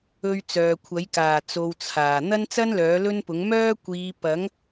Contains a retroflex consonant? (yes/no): no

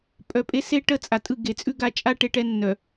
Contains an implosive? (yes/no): no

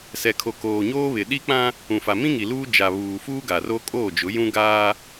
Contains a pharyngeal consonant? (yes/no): no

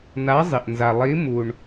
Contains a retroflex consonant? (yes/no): yes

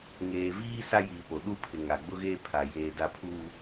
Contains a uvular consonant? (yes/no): no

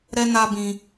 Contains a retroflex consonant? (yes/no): no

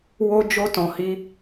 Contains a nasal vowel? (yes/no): yes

